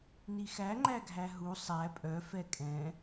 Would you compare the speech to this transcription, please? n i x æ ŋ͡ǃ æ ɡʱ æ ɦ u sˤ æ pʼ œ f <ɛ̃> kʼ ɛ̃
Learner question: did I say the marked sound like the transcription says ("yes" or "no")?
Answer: no